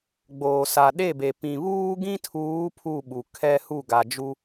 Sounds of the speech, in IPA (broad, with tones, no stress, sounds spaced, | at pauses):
ɡ͡b oː˨ s a˨ ɗ e˦˨ b e˨ p ĩ˨ β uː˦ ɡ ĩ˦ tʰ uː˨˦ pʰ u˦˨ ɓ u˨ kʰ ɛ˦ h u˦˨ ɡ a˨ d͡ʒ u˦